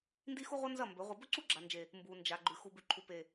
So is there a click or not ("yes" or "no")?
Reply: yes